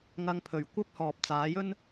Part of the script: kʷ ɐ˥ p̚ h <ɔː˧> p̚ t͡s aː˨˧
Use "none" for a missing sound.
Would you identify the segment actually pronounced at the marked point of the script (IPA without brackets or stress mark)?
ɔː˨